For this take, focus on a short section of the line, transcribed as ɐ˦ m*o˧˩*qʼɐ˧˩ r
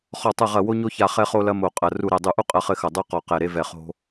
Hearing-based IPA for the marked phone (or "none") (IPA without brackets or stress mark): o˧˩